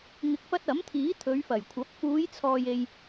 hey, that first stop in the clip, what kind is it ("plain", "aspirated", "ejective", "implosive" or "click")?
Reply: plain